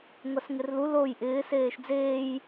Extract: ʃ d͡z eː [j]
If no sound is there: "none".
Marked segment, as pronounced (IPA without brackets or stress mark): j